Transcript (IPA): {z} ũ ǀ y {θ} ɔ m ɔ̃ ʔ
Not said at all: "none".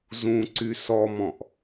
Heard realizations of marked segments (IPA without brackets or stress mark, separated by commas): z, s